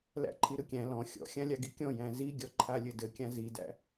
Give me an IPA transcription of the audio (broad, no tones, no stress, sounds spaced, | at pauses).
l æ̰ ǃʰ i ɾ ɯ kʲ æ̃ l ɔ̃ xʲ ɔ̰ xʲ ã lʲ a ɡ i kʲ ɔ̃ j æ̃ z i ɡʲ ɔ ǃʰ a lʲ ɘ d ɘ kʲ ã z i d æ̰